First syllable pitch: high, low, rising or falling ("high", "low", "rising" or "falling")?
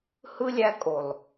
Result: high